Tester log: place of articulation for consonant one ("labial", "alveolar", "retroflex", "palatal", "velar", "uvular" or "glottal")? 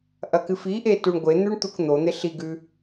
glottal